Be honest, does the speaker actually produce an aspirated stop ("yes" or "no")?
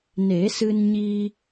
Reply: no